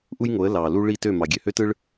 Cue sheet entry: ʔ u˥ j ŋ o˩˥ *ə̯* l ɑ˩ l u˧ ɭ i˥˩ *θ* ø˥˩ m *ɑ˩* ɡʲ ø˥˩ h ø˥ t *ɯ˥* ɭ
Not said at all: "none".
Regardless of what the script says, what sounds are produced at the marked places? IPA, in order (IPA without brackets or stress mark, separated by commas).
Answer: ə̯, t, ɑ˩, ɯ˥